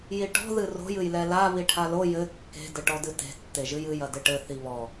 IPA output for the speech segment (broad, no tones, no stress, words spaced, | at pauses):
jiʈɔ̤ ðɨro̤j ɨjlɛla βiʈʰalo jɘ kːe̤ dɘʈɔdɨte̤ tːeʒɨjɨj ɐdɘʈɘ θiβɔ